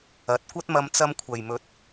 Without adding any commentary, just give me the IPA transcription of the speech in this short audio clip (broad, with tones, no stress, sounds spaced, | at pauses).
ɐ˨ t̚ kʷ ɐ˥ t̚ m ɐ˧ m t͡s ɐ˧ m kʷʰ ɐ˨ j m ɵ˨˥ t̚